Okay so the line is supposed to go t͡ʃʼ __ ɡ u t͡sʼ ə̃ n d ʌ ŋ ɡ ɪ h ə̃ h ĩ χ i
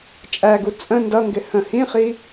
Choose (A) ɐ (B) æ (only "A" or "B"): B